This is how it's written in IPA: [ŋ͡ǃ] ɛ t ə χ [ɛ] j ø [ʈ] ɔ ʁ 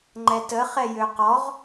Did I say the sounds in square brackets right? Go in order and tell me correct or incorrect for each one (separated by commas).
correct, correct, incorrect